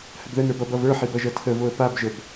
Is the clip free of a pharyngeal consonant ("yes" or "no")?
no